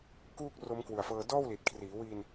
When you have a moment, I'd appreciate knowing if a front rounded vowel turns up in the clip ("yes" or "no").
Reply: no